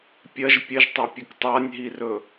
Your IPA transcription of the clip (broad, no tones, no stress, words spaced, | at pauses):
pʲɐʒ pʲɐʒtˤapʲɵk tˤanʲɦirɵ